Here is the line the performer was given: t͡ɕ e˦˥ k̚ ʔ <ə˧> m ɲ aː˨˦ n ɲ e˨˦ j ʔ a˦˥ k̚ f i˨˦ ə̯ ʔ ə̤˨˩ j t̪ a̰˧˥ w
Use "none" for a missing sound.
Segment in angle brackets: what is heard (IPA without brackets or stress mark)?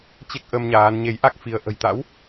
ə˧